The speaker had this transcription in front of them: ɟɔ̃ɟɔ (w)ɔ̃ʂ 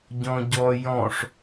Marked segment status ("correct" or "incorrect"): incorrect